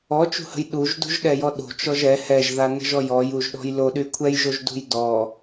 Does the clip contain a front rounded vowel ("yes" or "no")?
yes